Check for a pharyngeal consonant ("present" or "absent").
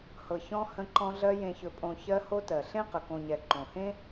absent